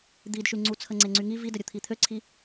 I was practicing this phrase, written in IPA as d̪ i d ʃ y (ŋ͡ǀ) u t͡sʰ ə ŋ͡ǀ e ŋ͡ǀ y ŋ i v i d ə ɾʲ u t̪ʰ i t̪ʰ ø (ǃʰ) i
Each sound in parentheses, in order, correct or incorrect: correct, incorrect: ǀʰ

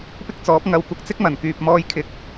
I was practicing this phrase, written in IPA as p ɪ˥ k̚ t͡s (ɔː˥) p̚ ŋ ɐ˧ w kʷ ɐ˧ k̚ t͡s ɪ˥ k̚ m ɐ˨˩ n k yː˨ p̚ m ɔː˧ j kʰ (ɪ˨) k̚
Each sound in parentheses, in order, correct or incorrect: incorrect: ɔː˨˥, correct

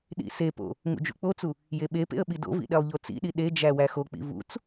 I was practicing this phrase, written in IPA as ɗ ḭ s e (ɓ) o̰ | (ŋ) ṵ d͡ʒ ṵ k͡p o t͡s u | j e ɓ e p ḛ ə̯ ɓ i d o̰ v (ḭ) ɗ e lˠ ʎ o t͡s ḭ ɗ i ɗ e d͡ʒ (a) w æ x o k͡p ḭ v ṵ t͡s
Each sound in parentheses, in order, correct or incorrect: incorrect: p, correct, correct, incorrect: æ

